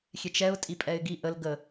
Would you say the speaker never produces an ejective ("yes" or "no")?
no